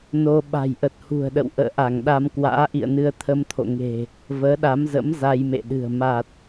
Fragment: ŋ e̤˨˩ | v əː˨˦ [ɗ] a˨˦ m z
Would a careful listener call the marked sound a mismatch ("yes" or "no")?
no